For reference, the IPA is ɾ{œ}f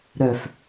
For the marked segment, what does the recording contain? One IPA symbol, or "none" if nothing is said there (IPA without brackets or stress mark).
œ